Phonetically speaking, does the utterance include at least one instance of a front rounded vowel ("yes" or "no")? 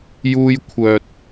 yes